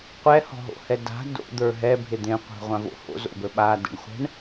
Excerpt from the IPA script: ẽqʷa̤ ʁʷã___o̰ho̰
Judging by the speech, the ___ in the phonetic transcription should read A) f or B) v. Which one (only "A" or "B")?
B